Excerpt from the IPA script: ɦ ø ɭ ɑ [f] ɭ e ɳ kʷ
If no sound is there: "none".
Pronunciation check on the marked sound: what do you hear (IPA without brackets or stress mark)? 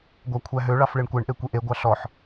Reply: f